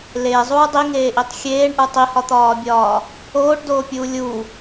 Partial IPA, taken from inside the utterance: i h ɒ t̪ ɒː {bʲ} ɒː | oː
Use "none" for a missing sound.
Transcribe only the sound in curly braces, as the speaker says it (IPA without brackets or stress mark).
bʲ